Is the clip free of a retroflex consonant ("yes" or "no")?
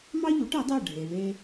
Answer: no